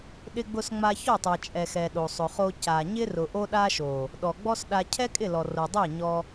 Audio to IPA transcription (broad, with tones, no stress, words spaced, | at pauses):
ɗɪ˧ɡ͡bʊ˧sŋ͡ma˧ çɔ˦˨tˤɛ˨t͡ʃʼɛ˨ xɛ˨ɗo˨sˤʊ˨χo˧ ca˨ ɲɪ˦ rʊ˨ʔo˧ɗa˧ʃo˨ | ɗɔ˨ɡ͡bɔ˦sɗa˧ cʰɛ˦kʼɪ˦˨lɔ˨ ro˨dˤɛ˦˨ɲɔ˧